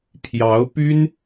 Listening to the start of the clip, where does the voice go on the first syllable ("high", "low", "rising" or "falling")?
rising